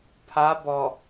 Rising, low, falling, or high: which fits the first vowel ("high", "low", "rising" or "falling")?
rising